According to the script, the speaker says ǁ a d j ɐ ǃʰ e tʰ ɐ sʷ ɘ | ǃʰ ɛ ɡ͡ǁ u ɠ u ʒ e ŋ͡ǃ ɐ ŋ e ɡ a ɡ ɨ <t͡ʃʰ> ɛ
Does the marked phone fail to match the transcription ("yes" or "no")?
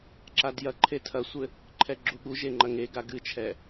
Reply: no